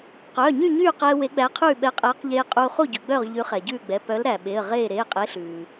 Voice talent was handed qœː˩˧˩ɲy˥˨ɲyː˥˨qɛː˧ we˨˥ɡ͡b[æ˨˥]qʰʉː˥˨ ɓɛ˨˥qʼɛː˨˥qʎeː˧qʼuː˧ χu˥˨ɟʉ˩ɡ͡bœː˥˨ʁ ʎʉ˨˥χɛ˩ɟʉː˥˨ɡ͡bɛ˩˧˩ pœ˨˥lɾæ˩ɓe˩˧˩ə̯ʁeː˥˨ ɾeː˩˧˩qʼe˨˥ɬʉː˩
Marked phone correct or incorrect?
correct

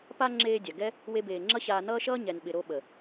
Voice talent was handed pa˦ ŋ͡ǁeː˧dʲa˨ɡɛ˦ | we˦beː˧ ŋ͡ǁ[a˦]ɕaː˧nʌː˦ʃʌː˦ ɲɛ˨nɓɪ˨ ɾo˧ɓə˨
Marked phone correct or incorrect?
incorrect: ʌ˦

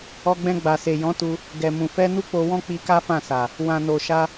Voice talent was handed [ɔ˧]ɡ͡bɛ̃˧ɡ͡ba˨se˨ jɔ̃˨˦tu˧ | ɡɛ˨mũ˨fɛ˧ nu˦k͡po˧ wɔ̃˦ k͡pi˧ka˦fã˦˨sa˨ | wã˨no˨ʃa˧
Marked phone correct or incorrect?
correct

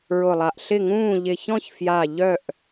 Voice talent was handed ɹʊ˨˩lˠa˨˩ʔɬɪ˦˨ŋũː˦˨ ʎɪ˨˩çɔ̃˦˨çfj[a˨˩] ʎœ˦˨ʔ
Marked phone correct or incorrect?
correct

